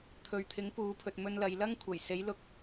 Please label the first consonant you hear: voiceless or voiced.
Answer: voiceless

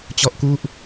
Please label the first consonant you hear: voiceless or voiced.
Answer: voiceless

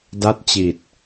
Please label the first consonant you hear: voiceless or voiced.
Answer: voiced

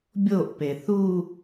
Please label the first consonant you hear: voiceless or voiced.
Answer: voiced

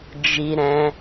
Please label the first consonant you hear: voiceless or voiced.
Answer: voiced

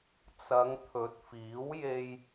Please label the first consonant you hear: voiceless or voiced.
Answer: voiceless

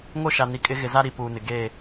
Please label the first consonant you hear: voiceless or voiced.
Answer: voiced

